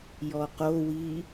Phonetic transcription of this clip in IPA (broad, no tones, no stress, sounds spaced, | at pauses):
j ɔ q o w i